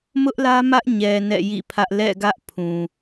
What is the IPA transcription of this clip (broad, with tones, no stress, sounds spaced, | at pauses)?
m ʊ˦ ʔ l ä˦ m ä˦ ʔ ɲ ɛ˨ n ɛ̰˦˨ j ḭ˦˨ pʰ ä˦ ʔ l ɛ̰˦˨ ɡ ä˦ ʔ pʰ ũ˨